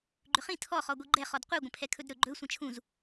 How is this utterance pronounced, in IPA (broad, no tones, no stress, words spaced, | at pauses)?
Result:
ɡ͡ǃʏχĩ tʰɔ χɔɡʷiɡ͡ǃɛ χɔdqʷe ɡʷə̃pʰɛkʰɵdɾɵ ɡ͡ǃɵ sʷə̃t͡ʃʰũz